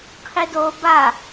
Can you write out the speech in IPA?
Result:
qʰ i d o b a

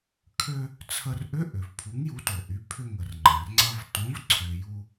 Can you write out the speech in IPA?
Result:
kʰ ø˧ | t͡sʰ ə˧ r ʔ ʏ˧˥˧ ʔ ʏ˩ v pʰ u˨˥ ŋ j u˨˥ t o˩ ʔ y˨˥ pʰ ʏ˧ ŋ ə˩ r ŋ͡ǃ ɐ̃˩ r ŋ͡ǀ ɐ˧ v t õ˨˥ v ǀʰ ø˩ j u˧

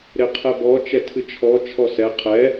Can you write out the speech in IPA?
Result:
ɾ e qʰ ɛ b ɔ t͡ʃ ɛ tʰ ɨ t͡ʃʰ ɔ t͡ʃʰ ɔ s ɛ qʰ ɛ

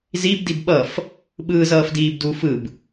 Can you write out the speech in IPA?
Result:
z i b d i b ɓ ʌ f | ɓ ɯː z ʌː f d iː b d u f ɯ b

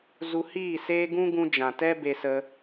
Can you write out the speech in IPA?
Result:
z u˧ h iː˦˨ s eː˦ ɡ ũ˦ ɡ ũ˧ d͡ʒ ã˨ t ɛ˦ b e˧ s ə˧

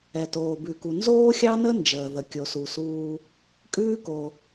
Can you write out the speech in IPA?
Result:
ɛ˩ t oː˩ b ʉ˩ k u˩ n z oː˥ xʲ ɑ˥ n ə˥ n d͡ʒ əː˩ ð ə˩ kʲ o˩ s u˩ s uː˧ | kʼ ʉː˥ k o˩

